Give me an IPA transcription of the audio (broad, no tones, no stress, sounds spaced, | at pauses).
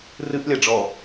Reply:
r ɨ ʔ lʲ a ɖ͡ʐ ɔ